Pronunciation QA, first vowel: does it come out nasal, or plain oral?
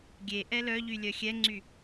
oral